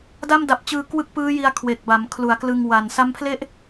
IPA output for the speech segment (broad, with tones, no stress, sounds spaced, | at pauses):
d a˥˩ m d a˨˩ p̚ t͡ɕ ɯː˧ k w ɯ˥˩ k̚ p ɯː˦˥ j i˧ a̯ kʰ w e˨˩ k̚ b a˩˦ m kʰ l u˩˦ a̯ k l ɯ˧ ŋ w a˨˩ n s a˦˥ m pʰ l e˥˩ ʔ